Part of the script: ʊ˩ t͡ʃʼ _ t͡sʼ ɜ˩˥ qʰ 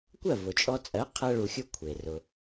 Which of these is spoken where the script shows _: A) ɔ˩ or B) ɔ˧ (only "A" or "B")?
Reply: B